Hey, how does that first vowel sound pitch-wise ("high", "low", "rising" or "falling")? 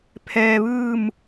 low